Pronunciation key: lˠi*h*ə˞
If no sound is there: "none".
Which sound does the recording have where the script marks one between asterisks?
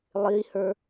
h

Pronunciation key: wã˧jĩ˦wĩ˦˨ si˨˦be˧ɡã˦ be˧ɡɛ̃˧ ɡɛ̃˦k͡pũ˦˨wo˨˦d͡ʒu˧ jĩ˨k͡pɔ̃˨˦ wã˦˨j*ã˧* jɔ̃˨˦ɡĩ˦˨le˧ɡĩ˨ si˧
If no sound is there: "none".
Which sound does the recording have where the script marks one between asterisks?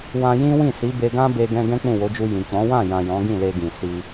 ã˨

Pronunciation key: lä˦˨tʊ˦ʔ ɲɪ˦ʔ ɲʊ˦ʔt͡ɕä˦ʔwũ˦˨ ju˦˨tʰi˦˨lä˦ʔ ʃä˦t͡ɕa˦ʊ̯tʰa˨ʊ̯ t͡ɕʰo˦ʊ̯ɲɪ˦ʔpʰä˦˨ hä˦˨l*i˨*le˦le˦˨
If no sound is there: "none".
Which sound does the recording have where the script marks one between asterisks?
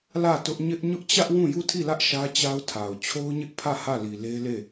i˨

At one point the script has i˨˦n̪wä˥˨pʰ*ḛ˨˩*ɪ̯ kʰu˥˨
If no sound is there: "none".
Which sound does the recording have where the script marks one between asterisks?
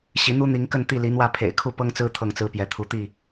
ḛ˨˩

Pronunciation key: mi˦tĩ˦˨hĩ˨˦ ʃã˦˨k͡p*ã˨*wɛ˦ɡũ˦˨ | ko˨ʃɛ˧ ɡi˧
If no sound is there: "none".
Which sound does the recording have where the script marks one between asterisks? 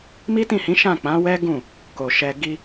ã˨˦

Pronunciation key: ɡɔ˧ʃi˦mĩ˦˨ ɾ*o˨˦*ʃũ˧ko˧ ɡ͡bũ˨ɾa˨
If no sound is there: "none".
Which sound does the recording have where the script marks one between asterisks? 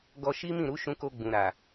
u˨˦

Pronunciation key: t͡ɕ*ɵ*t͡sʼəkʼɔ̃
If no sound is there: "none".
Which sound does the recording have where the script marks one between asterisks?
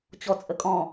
ɔ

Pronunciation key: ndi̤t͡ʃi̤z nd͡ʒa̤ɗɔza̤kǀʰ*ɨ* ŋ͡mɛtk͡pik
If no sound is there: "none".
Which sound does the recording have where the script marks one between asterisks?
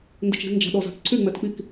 y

